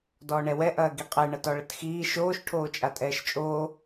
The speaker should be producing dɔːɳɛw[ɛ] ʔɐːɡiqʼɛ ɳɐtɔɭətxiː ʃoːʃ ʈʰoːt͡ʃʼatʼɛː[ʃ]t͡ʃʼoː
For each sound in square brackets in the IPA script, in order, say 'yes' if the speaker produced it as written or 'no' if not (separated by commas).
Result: yes, yes